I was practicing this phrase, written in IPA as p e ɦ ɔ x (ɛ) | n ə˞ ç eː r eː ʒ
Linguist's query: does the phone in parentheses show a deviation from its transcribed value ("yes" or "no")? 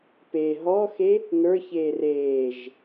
yes